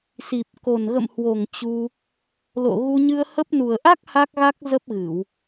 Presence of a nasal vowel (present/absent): absent